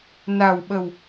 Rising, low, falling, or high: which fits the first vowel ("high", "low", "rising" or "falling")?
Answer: low